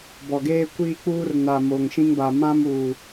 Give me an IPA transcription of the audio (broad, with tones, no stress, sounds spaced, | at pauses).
b ɔ˨ ɡ eː˦ kʷ iː˦ k͡p uː˦ r n a˨ m oː˨ ŋ ʃ ĩ˦ ŋ b a˨ m ã˦ m uː˨